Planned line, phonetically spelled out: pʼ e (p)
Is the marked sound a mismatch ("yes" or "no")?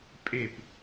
no